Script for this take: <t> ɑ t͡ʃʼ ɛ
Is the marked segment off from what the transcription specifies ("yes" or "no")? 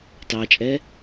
no